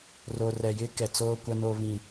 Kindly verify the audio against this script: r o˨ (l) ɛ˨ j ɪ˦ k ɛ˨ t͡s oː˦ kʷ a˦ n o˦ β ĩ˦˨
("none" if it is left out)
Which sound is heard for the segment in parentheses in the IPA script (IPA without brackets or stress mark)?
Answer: r